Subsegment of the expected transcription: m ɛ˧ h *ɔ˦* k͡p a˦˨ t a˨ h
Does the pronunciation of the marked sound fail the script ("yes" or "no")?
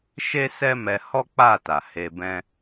no